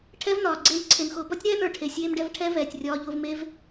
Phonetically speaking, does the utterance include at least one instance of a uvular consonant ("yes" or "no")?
no